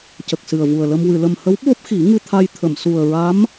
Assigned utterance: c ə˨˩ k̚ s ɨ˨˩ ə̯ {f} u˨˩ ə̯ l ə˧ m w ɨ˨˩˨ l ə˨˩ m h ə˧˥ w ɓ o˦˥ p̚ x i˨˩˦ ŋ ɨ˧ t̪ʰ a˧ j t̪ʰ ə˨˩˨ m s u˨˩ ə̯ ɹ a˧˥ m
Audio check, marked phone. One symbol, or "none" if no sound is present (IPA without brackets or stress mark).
v